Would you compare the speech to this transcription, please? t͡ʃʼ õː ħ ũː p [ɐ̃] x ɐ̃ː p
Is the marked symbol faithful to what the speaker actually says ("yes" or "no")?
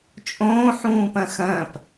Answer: yes